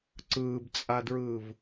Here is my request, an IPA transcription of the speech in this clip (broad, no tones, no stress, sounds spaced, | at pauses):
ǀ ɯː b t͡sʼ a d ɹ ɯː v